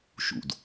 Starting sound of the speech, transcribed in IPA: ʃ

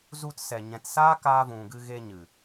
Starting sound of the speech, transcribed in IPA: z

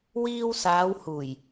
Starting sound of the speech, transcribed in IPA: w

